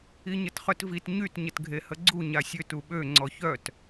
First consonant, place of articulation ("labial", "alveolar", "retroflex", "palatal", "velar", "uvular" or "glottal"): palatal